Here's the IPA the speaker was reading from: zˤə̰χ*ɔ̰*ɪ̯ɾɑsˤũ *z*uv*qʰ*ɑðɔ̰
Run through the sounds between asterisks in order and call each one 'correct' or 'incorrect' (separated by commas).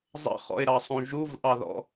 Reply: correct, incorrect, incorrect